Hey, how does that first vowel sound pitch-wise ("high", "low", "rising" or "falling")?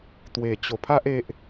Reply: low